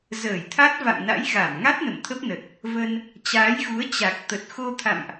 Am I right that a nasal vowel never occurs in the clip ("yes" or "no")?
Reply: yes